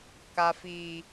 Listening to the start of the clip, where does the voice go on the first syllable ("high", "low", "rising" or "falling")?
low